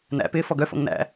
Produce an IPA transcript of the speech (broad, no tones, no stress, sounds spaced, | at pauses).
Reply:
n æ̰ p ɪː f ɔ ɡ œ f o̰ ŋ n æ̰